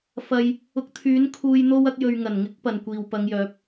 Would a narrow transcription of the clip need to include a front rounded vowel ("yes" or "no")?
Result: yes